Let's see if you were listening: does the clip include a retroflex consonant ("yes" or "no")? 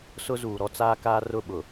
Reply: no